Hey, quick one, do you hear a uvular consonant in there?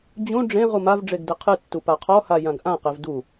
yes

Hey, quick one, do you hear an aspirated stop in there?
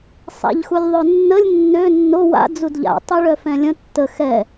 no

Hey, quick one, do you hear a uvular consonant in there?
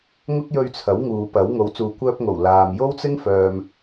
no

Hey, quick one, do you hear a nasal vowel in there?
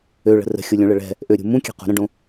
yes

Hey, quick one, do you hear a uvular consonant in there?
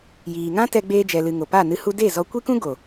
no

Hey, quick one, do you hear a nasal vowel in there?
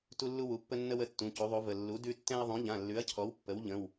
yes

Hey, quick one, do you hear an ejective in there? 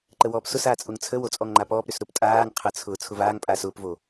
yes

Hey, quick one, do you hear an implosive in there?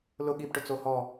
yes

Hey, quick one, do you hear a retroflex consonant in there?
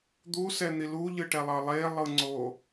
yes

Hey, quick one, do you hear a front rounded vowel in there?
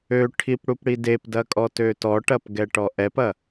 yes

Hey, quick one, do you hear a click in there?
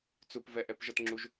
yes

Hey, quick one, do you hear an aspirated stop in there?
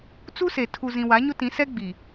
yes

